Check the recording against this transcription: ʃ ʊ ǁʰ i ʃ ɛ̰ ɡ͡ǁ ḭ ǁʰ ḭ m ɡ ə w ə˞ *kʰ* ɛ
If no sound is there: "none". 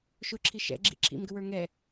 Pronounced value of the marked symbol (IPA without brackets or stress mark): ŋ